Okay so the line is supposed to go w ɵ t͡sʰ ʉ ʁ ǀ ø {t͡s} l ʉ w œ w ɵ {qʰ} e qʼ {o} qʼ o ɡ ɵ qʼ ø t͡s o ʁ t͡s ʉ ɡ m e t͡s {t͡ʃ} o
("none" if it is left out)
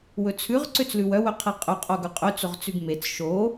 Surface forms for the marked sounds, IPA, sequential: t͡s, qʰ, ɵ, ʃ

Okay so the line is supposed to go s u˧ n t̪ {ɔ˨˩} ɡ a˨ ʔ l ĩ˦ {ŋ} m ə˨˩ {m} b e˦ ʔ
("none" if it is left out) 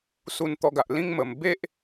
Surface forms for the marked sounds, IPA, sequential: ɔ˧, ŋ, m

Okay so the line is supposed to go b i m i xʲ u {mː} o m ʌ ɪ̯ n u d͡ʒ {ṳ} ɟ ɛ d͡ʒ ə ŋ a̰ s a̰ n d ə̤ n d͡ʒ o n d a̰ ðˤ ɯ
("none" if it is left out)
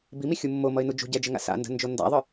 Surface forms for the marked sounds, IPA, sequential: mː, ṳ

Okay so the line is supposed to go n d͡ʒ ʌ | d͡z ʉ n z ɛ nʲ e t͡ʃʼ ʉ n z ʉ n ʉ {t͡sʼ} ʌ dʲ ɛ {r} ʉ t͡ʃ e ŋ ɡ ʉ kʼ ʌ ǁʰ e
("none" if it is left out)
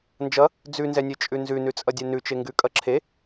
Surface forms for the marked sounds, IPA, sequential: t͡sʼ, n

